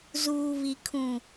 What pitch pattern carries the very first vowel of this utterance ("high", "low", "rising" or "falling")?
low